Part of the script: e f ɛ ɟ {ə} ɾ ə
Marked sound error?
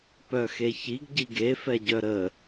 yes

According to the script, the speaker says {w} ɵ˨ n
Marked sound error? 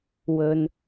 no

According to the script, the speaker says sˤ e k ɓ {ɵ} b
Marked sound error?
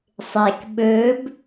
no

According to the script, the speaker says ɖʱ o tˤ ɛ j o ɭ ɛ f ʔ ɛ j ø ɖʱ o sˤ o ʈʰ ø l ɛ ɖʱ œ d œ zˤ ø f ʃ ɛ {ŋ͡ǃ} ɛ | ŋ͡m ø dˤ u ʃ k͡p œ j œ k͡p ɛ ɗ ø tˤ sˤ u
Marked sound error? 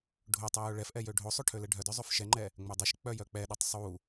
no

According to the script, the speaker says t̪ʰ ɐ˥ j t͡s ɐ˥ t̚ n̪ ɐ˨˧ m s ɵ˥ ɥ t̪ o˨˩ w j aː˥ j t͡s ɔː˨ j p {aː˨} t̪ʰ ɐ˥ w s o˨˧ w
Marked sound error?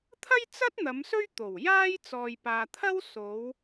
no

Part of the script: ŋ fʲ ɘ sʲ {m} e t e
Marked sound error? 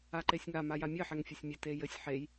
yes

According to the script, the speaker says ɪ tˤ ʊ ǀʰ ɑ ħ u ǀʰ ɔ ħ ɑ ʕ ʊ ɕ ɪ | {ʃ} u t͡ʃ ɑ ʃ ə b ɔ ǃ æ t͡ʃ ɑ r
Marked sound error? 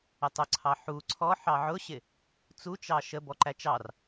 yes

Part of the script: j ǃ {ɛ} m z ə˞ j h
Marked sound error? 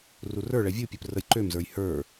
yes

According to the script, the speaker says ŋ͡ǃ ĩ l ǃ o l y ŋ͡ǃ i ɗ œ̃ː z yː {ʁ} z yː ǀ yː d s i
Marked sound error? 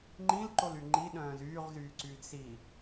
no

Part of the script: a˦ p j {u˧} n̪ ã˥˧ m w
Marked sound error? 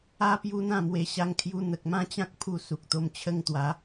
no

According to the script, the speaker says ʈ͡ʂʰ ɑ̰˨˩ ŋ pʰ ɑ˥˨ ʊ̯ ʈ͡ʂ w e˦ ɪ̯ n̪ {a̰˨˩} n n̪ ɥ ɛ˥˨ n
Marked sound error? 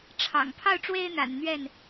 no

